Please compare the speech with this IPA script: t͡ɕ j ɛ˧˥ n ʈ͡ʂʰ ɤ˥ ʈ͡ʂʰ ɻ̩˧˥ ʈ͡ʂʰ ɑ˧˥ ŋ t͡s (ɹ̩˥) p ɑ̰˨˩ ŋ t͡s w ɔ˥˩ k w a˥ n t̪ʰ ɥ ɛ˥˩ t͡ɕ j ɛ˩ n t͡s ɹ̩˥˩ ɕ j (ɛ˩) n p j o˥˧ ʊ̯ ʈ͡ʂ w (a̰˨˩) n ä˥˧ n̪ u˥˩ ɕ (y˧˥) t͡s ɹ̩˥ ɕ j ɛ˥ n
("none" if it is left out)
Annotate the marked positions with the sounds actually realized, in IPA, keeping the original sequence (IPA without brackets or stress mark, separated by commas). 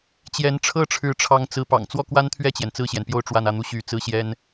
ɹ̩˧˥, ɛ˩, a˥˧, y˧˥